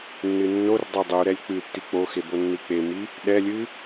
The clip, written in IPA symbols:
nːɨnːordˤɛ dˤuɾɛlʲ k͡pɨ tːik͡poxe bonːik͡pemi | ɗɛlʲɨ

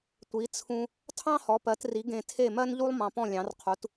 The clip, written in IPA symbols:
tʷi˩˥t͡sʰũ˧ | tʰɑ̃˥hɔ˩˥pɜ˩˥tri˩˥ ɡẽ˧tʰe˥˩mɜ˥nʎu˥lˠ mɑ̃˧pɔ̃˥˩lʲɑ̃˩˥rqʰu˩˥t

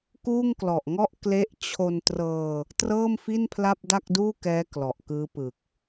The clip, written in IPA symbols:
kuː˥˩ŋklɔ˨˩ʔŋɔ˥˩ʔ kle˥˩ʔ t͡ɕʰo˧ntrɤː˧ | trɤː˥˩mfi˥˩n pʰla˥˩p̚da˥˩k̚duː˥˩kɛː˦˥ klɔ˨˩ʔkɯː˦˥pɯ˨˩k̚

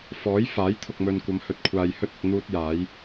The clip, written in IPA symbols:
fɔː˨˥j faː˨˥jt̪ʰʊ˨k̚mɵ˨nkʷɐ˨˧m hɵ˨t̚kʷʰaː˨jhɵ˥t̚ɪ˨k̚ n̪uː˥t̚jaː˨˥j

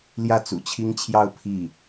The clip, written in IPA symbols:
ljä˥˩t͡sṵ˨˩t͡ɕʰi˥ŋt͡ɕʰjɑ˥˧ʊ̯ pʰi˥˩

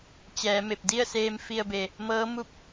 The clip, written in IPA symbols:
t͡ɕɛː˩˧me˧˩p̚ di˥˨ə̯seː˧m fi˧ə̯be˩ | mɤː˧˥mu˥˨p̚

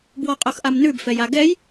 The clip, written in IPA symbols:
bwɔqʼoxʔamnʉb fɛjaɡɛj

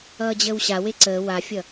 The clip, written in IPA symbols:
ʌːd͡ʑəːwɕa weǀəː wafʲʌ

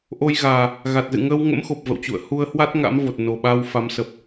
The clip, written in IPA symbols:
ʔo˧jɣaː˨˩ | ɣa˨˩t̚zɨ̰˧˨ ŋəː˧wŋə̰˧˥mxo˨˩p̚ və̰˧˨wt͡ɕṵ˧˨ə̯ hu˧ə̯hwa˦˥t̚ ŋa̰˧˥mvo˨˩t̚ no˨˩ɓa˧w fa˨˦msə˨˩p̚

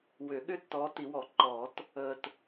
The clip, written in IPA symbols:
wʏ˨˩˦ɠʏ˦ tːɔː˨˦ti˨˩˦wɔ˨˩˦ ǃɔː˨˩˦t | əː˨t

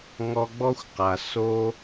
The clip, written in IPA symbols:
ŋɔ˦ɡ͡bɔ˥xʷqa˨ so˦

